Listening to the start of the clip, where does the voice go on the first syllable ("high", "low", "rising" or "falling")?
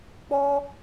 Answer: high